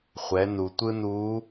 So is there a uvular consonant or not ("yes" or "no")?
yes